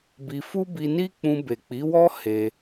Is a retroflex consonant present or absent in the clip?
absent